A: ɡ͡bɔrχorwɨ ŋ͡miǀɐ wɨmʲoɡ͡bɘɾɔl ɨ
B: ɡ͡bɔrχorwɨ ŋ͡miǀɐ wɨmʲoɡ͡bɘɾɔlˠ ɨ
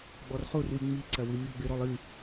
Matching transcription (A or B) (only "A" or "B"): B